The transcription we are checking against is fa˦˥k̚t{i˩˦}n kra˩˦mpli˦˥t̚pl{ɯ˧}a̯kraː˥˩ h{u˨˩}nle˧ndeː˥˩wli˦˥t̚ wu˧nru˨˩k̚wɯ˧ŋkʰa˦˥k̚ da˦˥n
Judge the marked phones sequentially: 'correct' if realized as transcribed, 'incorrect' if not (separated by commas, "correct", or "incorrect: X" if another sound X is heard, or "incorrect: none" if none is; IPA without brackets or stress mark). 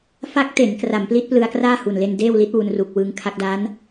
incorrect: e˩˦, correct, correct